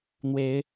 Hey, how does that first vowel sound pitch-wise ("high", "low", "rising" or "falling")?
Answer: rising